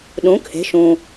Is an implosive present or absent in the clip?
present